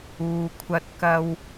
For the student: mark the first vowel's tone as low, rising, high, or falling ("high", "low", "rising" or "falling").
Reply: low